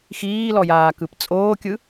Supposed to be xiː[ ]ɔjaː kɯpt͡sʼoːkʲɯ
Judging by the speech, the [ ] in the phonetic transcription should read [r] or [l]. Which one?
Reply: l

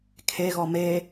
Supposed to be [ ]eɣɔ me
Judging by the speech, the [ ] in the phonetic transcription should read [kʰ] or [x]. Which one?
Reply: kʰ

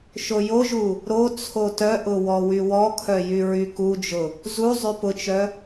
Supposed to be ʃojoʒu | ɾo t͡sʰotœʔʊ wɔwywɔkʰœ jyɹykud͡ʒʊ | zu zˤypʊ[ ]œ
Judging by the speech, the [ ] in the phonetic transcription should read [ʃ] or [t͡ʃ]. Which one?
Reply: t͡ʃ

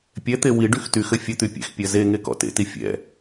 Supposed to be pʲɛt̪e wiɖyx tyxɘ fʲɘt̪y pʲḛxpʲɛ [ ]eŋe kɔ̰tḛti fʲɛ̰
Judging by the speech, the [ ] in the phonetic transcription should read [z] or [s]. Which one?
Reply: z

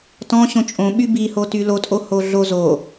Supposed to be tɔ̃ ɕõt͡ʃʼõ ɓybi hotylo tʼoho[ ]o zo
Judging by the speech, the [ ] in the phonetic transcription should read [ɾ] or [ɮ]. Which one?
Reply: ɮ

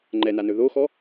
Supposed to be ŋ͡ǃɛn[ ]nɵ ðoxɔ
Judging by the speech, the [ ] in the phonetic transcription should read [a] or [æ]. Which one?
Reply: a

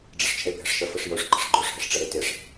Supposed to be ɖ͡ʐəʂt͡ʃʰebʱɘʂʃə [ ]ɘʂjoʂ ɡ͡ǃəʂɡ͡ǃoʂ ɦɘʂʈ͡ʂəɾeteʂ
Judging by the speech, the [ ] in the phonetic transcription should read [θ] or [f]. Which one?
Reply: f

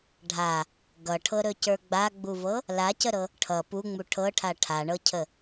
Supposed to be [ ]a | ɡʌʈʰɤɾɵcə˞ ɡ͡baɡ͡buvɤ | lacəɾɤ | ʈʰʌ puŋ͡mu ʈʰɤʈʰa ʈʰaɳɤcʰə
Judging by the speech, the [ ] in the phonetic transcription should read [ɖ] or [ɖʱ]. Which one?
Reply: ɖʱ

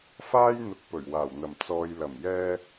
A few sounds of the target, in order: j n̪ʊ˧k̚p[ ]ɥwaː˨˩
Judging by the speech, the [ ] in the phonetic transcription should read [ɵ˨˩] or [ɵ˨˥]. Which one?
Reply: ɵ˨˩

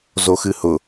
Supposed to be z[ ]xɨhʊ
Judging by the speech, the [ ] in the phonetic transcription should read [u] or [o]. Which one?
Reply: o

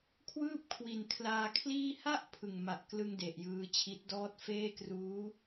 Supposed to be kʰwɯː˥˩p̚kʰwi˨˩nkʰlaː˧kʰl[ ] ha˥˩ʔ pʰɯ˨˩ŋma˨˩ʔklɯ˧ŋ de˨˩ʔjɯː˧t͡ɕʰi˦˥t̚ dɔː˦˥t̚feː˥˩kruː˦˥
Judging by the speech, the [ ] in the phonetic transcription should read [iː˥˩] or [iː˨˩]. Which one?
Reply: iː˥˩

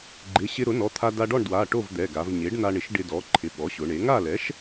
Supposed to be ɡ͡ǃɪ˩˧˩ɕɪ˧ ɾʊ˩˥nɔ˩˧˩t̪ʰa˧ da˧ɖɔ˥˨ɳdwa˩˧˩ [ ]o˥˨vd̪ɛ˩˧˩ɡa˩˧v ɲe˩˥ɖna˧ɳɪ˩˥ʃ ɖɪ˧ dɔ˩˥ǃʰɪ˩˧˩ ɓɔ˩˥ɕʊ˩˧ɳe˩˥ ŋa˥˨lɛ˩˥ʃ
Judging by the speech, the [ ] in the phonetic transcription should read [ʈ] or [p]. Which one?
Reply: ʈ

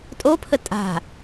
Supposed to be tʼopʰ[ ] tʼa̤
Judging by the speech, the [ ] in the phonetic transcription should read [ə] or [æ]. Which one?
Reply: ə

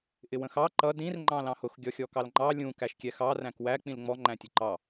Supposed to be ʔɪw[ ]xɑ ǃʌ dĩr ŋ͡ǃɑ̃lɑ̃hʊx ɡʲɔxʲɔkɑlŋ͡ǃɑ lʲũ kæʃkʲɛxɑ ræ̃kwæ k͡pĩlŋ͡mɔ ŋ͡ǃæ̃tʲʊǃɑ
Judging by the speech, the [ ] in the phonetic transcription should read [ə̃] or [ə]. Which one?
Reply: ə̃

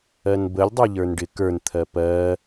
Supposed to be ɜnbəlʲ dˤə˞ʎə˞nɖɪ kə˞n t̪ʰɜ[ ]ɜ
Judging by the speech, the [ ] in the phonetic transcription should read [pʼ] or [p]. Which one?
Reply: p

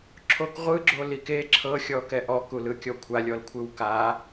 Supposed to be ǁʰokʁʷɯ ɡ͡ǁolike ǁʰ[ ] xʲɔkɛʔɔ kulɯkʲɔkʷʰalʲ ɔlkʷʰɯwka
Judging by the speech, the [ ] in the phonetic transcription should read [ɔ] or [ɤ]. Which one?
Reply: ɤ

